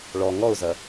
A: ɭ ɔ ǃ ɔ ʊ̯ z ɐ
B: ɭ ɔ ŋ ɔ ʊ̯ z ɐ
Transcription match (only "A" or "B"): B